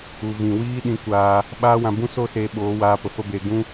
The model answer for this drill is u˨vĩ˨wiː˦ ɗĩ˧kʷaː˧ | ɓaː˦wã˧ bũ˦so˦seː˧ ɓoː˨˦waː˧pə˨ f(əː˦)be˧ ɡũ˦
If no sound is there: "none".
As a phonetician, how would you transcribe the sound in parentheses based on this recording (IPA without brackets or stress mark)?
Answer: ə˦